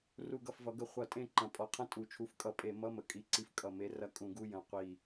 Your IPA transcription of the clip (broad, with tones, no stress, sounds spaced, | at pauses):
r u˦˨ ɡ ʌ˦˨ f v ʌ˨˥ ɡ ə˦˨ χʷ ʌ˧˩˧ tʼ ẽ˦˨ ǃ ɐ̃˨˩ pʼ ɔ˨˩ qʰ ɐ̃˦˨ tʼ u˨˩ t͡ʃʰ u˨˥ f kʼ ʌ˧˩˧ pʼ e˧˩˧ m ʌ˧˥˧ m ə˨˩ kʼ i˨˥ ǀ i˨˥ f kʼ ʌ˨˩ m e˨˥ r ɐ˦˨ kʼ ũ˧˩˧ ɡ u˧˥˧ j ɐ̃˨˩ qʷ i˨˩